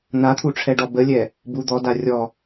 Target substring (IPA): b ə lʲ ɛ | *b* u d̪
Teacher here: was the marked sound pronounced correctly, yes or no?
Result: yes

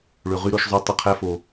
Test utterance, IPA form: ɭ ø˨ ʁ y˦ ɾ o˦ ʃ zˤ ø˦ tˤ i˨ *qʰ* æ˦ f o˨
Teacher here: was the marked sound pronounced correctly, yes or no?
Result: yes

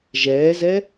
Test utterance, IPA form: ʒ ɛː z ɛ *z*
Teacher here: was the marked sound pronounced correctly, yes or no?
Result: no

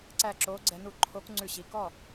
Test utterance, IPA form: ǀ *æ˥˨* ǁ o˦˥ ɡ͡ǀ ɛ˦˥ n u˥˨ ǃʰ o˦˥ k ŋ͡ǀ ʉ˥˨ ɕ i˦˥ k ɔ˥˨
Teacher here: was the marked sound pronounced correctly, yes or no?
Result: yes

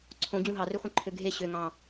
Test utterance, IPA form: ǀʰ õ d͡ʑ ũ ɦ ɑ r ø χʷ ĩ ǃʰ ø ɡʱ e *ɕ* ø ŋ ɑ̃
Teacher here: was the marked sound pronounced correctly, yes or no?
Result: yes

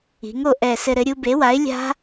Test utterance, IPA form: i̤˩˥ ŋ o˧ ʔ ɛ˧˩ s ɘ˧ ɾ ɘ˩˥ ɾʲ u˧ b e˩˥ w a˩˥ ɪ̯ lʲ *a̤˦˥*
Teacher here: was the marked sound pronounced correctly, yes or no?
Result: yes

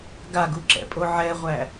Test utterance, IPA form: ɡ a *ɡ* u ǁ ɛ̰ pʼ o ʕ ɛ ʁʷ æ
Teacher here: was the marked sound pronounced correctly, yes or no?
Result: yes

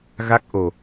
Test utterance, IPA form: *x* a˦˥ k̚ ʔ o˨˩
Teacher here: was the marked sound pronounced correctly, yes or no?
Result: no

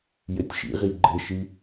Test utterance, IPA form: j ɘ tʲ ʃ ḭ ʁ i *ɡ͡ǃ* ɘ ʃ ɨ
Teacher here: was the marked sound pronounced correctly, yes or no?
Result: yes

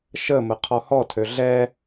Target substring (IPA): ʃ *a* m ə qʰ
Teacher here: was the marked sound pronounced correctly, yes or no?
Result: no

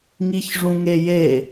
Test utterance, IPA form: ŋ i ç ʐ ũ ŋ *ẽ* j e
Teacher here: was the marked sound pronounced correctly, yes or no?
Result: no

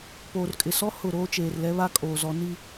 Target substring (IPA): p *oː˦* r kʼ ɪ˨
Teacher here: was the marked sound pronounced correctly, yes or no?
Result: no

